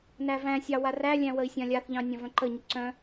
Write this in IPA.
nævæ̃sʲɑ warælʲæ̃ wəi̯sʲãlʲaθʎɑ̃ nʲãvœ̃ǃəɲʊ ǀœ̃

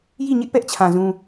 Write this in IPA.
ji˦˨ɲɪ˦ʔpɛ˦ʔt͡ɕʰã˨ zũ˦

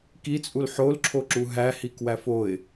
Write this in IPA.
kit͡sʼul ħolǁʰoǁu ɦæhikwæf oɪ̯

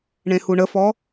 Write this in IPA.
ɳẽhuɳəfɔ

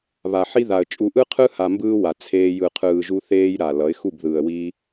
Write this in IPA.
βa˨ħi˦ða˨ə̯t͡ʃʼu˧ ʔɯ˦qʰɯ˦ha˨mbɯː˧ wa˨t͡sʰeː˧ jɯ˨qʰɯː˨ʒu˧ θeː˦jɾa˨ lʌ˨˦ɪ̯xu˦˨b ðɯː˨ə̯wiː˧

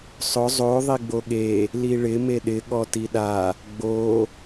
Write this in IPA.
sˤʊ zˤo ðˤiɡ͡boɠe | liɭɪ meɗɪ ɠɔtiɗa | ɡ͡bo

